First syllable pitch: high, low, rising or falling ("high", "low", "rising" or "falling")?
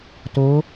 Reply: rising